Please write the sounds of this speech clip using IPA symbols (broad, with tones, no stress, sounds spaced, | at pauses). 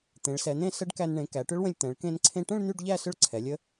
t̪ ẽ˩˧ ɭ s ɛ˩˧ n̪ ẽ˥˧ s ə˦˥ ɖ k æ˧ n ɳ ẽ˩˧ k æ˩˧ ʈ ʏ˦˥ ɭ w ə̃˧ lʲ t̪ ɛ̃˩˧ ɭ k ẽ˧ n ǀʰ ẽ˧ ʈ ə̃˥˧ ɭ n̪ y˥˧ ɖ ʎ æ˥˧ s ʏ˥˧ ɭ ǀʰ ɛ˩˧ lʲ ə˦˥